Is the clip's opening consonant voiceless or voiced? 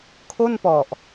voiceless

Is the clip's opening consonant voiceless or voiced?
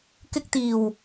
voiceless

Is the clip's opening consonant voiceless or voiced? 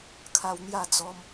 voiceless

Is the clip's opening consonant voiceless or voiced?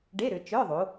voiced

